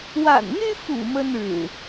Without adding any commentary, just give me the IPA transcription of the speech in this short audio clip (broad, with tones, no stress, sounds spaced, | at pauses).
w a̰˨˩ n n̪ y˦ f ṵ˨˩ m ə˦ n ɻ ɻ̩˨˩